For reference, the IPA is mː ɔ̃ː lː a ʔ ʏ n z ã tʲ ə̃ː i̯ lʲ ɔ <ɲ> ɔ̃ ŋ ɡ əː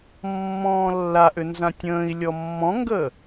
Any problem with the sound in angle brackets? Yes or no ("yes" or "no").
yes